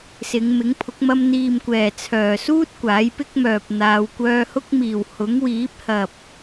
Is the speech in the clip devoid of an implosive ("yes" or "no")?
yes